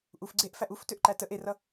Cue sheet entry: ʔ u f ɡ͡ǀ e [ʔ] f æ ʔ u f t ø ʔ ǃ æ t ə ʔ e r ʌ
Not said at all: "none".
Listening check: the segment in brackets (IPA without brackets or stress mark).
ʔ